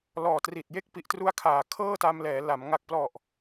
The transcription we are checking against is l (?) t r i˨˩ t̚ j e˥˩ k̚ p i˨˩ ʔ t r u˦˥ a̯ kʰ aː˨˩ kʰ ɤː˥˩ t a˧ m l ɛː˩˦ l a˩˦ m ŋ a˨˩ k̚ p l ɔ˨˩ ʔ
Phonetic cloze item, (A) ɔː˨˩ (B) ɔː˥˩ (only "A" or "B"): A